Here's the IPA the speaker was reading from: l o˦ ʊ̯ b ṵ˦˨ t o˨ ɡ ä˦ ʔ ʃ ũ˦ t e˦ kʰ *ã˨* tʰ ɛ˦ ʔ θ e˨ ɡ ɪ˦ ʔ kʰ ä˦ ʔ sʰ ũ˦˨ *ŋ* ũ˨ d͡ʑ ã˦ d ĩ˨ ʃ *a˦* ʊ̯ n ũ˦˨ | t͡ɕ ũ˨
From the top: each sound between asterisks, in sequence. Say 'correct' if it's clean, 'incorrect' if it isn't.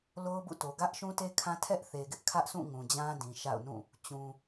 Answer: incorrect, correct, incorrect

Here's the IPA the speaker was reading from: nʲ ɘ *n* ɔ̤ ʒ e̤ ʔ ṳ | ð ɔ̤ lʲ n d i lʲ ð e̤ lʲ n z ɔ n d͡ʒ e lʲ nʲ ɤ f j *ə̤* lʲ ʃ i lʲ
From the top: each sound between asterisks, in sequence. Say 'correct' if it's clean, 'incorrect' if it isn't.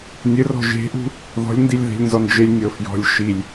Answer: incorrect, incorrect

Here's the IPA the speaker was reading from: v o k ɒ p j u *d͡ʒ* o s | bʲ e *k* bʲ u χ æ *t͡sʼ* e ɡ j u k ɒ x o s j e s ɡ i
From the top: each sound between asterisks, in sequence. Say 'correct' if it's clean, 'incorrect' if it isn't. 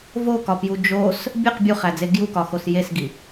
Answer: correct, incorrect, incorrect

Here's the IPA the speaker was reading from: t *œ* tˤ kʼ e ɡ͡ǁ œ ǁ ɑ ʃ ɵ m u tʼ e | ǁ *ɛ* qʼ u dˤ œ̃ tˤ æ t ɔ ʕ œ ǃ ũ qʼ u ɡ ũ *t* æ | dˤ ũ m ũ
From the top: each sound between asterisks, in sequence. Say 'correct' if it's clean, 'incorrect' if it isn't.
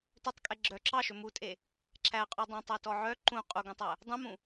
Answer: correct, incorrect, incorrect

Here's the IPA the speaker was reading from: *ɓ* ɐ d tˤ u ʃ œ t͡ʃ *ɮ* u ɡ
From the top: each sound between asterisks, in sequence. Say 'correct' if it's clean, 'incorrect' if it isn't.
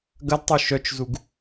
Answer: incorrect, incorrect

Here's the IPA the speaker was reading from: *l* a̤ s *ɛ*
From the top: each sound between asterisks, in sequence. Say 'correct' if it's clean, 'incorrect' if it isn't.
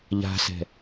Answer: incorrect, incorrect

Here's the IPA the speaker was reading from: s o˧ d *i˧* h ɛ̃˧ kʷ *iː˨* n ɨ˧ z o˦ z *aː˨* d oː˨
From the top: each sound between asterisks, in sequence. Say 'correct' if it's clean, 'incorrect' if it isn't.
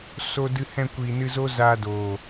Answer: incorrect, correct, incorrect

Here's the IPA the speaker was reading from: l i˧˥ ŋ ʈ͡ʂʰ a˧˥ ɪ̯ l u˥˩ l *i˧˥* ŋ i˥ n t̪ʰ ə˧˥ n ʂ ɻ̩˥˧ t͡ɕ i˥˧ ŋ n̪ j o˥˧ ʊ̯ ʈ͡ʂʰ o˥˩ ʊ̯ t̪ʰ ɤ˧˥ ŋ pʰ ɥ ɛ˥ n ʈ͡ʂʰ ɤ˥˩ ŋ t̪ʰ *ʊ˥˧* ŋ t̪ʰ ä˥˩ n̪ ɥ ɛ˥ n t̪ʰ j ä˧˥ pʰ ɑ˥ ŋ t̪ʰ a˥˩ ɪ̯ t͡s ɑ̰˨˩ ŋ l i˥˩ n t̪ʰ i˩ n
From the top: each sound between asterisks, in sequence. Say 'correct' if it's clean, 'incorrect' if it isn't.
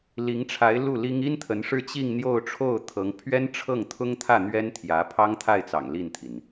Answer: incorrect, incorrect

